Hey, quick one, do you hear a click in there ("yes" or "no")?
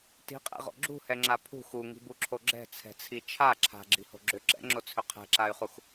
yes